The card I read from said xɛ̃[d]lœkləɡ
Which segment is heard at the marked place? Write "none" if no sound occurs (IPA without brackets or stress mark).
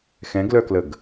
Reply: ɡ